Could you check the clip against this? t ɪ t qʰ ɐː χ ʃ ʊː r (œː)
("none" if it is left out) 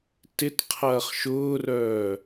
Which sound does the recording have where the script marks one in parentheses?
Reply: œː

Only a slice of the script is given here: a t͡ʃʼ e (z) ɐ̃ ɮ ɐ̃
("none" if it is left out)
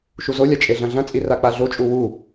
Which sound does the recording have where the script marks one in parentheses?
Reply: ɮ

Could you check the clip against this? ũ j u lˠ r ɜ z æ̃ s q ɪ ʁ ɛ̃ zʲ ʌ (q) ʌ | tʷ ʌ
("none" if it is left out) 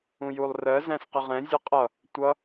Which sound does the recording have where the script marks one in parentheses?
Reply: qʼ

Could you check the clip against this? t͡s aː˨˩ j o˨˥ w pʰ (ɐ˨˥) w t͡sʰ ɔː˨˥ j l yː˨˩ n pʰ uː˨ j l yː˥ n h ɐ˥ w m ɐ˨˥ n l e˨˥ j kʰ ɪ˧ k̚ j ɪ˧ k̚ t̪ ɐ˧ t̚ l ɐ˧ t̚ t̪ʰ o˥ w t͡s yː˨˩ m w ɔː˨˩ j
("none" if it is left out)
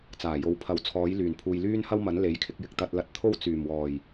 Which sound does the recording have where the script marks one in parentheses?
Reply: ɐ˨˥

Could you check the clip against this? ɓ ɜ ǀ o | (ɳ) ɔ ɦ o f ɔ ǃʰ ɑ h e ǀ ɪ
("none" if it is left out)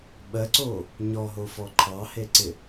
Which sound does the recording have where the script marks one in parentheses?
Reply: ɲ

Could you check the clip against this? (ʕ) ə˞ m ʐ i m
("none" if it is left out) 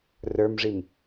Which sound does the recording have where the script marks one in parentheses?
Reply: r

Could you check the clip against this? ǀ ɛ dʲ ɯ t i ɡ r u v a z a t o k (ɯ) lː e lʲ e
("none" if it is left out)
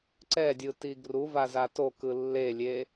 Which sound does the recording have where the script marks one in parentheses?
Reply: ɯ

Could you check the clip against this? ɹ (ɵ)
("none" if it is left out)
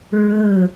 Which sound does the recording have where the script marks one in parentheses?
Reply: ɵ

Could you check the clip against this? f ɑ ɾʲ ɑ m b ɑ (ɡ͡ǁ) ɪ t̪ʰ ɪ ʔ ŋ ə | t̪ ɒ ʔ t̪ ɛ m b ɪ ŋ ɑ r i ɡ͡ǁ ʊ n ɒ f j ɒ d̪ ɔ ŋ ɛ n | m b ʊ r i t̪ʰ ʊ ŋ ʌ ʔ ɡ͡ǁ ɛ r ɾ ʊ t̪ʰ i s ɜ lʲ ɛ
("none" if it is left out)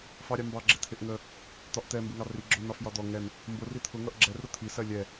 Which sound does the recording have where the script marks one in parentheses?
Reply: ɡ͡ǁ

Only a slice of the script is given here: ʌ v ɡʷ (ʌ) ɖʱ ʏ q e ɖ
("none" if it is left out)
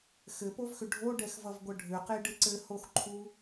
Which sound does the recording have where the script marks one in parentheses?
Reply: ʌ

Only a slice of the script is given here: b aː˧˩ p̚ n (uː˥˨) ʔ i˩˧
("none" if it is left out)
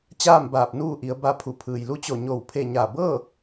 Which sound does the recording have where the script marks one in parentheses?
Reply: uː˥˨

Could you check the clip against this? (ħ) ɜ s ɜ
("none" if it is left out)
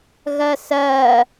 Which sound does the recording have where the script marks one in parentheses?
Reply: ɣ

